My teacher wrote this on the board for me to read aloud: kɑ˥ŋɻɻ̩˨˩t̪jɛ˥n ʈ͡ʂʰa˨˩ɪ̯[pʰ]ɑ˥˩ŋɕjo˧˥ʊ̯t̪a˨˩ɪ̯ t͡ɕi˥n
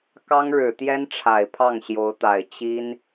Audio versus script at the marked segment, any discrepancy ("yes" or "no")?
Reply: no